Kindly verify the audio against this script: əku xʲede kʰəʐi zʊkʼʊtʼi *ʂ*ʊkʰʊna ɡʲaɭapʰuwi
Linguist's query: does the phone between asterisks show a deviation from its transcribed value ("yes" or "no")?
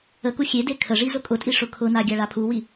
no